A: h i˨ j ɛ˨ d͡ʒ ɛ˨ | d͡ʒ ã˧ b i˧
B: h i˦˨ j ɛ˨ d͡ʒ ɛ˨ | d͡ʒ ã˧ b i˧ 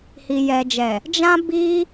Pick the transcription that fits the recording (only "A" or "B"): A